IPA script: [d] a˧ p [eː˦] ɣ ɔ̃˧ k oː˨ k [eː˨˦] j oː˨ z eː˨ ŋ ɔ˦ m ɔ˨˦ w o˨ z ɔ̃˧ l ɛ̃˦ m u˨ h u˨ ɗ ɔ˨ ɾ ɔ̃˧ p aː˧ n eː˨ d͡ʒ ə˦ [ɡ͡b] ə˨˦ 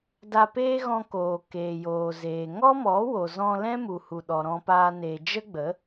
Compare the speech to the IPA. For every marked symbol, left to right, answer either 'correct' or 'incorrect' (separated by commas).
correct, correct, incorrect, correct